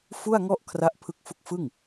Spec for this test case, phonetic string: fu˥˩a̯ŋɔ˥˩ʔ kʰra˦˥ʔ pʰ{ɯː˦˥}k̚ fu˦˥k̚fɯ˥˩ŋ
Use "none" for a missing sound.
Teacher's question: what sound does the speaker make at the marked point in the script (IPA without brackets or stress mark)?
ɯ˦˥